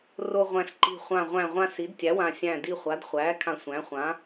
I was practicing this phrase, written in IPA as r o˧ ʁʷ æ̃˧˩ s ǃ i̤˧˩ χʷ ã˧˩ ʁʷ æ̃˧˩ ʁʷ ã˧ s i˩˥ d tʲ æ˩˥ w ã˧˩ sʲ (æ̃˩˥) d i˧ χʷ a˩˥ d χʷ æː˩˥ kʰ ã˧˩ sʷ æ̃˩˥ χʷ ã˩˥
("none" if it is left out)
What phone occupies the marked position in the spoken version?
æ̃˧˩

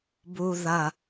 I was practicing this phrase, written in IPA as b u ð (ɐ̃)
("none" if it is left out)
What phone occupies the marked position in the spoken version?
ɐ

